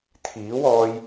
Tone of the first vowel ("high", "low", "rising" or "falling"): rising